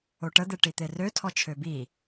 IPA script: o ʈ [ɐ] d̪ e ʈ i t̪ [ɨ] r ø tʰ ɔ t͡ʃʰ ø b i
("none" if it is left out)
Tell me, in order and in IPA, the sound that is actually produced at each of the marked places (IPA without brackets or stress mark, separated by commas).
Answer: ə, e